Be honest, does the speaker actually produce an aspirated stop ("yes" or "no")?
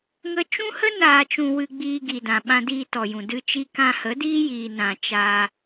no